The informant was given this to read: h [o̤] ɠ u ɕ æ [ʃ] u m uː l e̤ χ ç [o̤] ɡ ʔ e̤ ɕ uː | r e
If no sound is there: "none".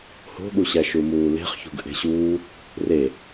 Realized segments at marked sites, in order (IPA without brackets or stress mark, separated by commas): o̤, ʃ, ṳ